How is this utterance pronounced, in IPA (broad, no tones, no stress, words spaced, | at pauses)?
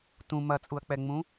tũ mɐt͡sʼuɐ̯k͡pɛŋ͡mũ